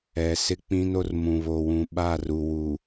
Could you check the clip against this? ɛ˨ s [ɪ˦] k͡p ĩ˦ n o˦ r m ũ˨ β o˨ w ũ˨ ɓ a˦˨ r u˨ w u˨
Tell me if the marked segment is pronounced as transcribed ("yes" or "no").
yes